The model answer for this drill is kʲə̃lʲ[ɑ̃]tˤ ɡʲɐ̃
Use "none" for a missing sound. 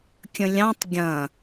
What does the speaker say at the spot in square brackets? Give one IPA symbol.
ɑ̃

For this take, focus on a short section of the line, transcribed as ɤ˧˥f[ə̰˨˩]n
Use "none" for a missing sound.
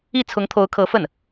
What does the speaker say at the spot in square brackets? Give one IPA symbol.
ə˥˩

